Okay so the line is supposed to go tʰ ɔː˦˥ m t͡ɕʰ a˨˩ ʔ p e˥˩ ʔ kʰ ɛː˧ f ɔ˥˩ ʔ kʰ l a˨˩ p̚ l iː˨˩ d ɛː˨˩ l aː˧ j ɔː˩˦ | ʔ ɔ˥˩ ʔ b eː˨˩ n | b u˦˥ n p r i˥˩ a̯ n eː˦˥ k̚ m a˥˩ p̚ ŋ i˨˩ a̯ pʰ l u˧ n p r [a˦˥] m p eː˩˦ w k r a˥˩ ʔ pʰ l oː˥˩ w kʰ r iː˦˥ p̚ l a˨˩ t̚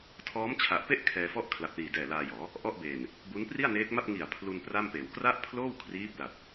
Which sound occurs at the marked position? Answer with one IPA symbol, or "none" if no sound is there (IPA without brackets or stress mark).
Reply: a˥˩